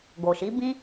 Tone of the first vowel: low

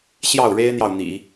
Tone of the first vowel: falling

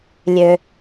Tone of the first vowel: low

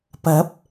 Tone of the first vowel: rising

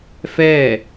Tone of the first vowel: falling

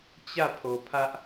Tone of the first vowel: falling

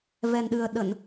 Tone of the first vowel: low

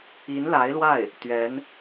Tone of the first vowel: rising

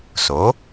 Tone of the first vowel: rising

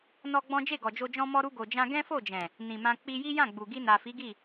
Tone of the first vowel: high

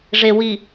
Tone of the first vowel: low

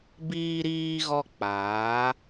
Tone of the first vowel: high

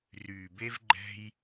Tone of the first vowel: low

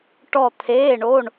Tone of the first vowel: falling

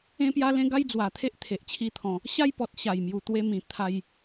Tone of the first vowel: high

